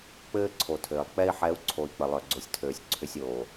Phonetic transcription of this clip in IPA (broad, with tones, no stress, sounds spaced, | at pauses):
k͡p ɘː˦ ǀʰ o˨ tʰ ɘː˨ lˠ k͡p ɛ˧ i̯ ħ ɛ˨˦ u̯ ǀʰ o˨ i̯ k͡p ə˨ lˠ œ˨ ɡ͡ǀ o˨ sʲ tʰ øː˨ sʲ ǀʰ ʏ˧ sʲ oː˨